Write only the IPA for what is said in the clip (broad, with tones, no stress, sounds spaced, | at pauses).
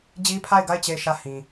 d͡ʑ i˦ pʰ a˦˨ ɪ̯ ɡ a˦˨ ɪ̯ t͡ɕ e˦˨ ɪ̯ ʃ ä˦˨ h ĩ˨